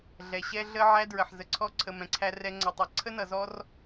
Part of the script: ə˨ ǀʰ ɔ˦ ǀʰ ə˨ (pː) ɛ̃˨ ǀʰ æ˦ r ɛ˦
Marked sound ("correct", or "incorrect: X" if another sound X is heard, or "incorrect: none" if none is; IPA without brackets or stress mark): incorrect: m